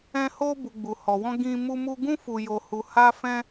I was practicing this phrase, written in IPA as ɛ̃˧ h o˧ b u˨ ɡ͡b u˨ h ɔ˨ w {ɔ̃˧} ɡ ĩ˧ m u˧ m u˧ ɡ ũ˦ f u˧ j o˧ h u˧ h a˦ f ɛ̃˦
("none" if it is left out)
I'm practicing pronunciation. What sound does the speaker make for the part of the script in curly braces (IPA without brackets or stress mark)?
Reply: ɔ̃˧